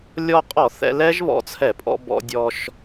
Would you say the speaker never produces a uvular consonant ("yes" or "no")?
no